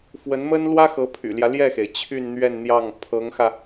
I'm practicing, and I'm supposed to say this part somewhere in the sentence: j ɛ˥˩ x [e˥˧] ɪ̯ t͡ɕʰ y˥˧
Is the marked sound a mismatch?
yes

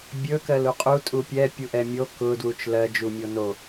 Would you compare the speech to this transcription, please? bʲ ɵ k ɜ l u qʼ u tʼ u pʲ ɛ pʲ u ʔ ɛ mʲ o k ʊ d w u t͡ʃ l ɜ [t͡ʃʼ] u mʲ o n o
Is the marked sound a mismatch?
yes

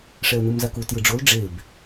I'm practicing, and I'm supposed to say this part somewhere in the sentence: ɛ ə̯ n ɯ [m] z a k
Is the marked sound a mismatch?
no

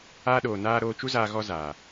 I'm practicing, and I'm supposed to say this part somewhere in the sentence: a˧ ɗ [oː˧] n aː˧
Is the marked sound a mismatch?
yes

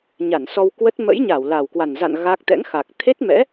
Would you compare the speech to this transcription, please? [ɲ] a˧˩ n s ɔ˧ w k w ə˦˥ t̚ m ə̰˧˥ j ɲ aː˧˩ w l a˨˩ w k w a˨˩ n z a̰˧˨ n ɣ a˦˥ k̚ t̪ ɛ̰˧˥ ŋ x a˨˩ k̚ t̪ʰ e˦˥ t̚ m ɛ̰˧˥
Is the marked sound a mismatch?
no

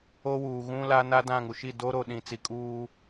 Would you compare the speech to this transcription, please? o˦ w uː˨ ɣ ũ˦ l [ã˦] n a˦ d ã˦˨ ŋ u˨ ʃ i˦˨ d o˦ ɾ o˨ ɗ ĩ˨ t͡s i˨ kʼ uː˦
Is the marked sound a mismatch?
yes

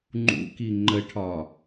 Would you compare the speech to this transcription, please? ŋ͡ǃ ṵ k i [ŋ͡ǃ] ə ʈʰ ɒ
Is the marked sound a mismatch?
no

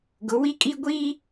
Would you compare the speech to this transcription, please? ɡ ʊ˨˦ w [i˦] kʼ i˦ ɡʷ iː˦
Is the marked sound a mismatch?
no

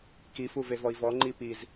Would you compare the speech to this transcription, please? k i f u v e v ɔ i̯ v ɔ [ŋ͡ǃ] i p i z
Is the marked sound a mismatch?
no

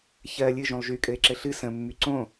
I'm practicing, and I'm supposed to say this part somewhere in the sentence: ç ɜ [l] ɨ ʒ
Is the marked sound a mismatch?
yes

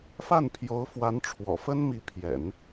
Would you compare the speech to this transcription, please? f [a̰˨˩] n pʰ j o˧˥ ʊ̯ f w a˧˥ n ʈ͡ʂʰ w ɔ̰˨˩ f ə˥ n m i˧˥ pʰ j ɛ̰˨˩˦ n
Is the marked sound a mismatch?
yes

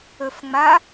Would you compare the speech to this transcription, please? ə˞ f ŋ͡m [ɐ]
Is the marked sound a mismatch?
yes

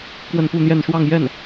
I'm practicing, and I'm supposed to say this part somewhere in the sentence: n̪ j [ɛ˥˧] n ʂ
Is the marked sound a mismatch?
no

